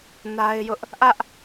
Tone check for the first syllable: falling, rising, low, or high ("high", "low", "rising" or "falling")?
high